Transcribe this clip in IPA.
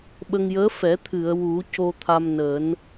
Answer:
ɓ ə˧ ŋ j əː˧˥ f ɛ˨˩˦ t̪ʰ ɨ˨˩˨ ə̯ w u˨˩˦ c o˧ t̪ʰ a˧ m n əː˨˩˦ n

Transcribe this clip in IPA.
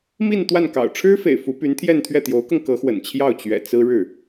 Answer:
m i˥˧ n t̪ w a˥˩ n k ɑ̰˨˩ ʊ̯ ʈ͡ʂʰ ɻ̩˥ f ḛ˨˩ ɪ̯ f u˧˥ p y˧˥ n t̪ʰ j ɛ˥˧ n t̪ʰ ɥ ɛ˥˩ t̪ j o˧˥ ʊ̯ k ɤ˧ ŋ k ɤ˧˥ x w ə̰˨˩ n t͡ɕʰ j ɑ˥˩ ʊ̯ t͡ɕ ɥ ɛ̰˨˩ t͡s ɹ̩˥ ɻ ɻ̩˥˩

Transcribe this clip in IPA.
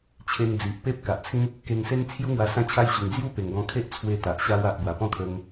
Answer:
t͡ɕʰ e˧ ŋ d͡z i˨ ʔ p e˦ p̚ k a˨ ʔ t͡sʰ ĩ˦ | k e˧ ŋ s e˦ n t͡sʰ j u˦ ŋ w a˧ s ã˦ t͡ɕʰ a˦ j ɕ u˨˩ ŋ d͡z j u˥˧ p e˨˩ ŋ ɡ ɔ̃˧ kʰ e˦ ʔ t͡sʰ w e˧ t̪ a˨ ʔ ɕ a˧ w a˨ ʔ b w a˨˩ p ɔ̃˥˧ kʰ ə˧ ŋ

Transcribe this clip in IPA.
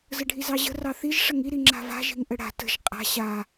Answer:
z ə ɖʱ i z ɑ ʑ ə̤ r ɑ θ i ʒ ʂ ə ŋ i ɾ i ŋ͡ǁ a̤ v a̤ ʒ i̤ ŋ ʔ ə ɽ a̤ t ə̤ ʒ qʼ a̤ ɕ a

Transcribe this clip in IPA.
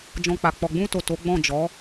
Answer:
d͡ʒ ɔ̃˧ k͡p a˨ k͡p ɔ˨ ɡ͡b ũ˧ t o˨ t o˨˦ ɡ͡b ɔ̃˦˨ d͡ʒ ɔ˨˦

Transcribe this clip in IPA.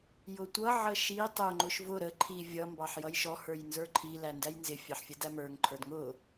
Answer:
j ʊ tʷ ʌ ʕ ə ʃ i tˤ ʊ ŋ͡ǃ ʊ ʃ v ʊ ɾ ə ǃʰ i vʲ ʌ m b ɑ ħ j ʌ j ʃ ɔ h ə˞ j n z ə˞ ǃʰ i l æ n d æ j n z ɪ fʲ ɑ ħ fʲ ə d æ m ə˞ ŋ ǃʰ ə˞ d ŋ ʊ

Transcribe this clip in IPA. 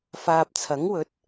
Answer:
f aː˨ p̚ t͡sʰ ɐ˨˥ ŋ w ɵ˨˥ t̚

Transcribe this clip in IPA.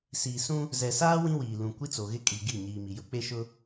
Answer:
s iː˨ s ũ˦ | z ɛ˨ s aː˦ w ĩ˦ w iː˨ l ũ˨ kʷ i˦ t͡s o˨ ɣ ɪ˦ kʼ i˨ ɡ i˦˨ ɲ iː˨ m i˨ j ʊ˦ k͡p e˦ ʃ ʊ˦

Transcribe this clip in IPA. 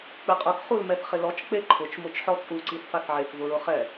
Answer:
k͡p ɪ qʼ ʊ k χ u l m ɛ θ χ ɪ l ɔ t͡ʃ k͡p e ǃʰ ʊ t͡ʃ m ʊ t͡ʃ ħ ɔ t͡sʼ u ǀ i θ f a θ ʕ e k v ʊ ɹ ʊ χ ɛ

